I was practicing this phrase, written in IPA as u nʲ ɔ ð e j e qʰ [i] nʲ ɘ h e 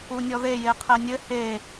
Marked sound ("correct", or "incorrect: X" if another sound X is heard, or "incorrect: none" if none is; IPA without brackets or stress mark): incorrect: e